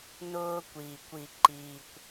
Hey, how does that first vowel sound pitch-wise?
high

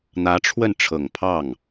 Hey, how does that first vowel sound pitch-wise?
rising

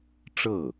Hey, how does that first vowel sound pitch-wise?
falling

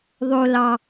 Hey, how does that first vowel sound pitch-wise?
low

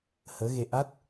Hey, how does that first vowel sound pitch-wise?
rising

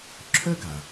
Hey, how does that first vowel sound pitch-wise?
high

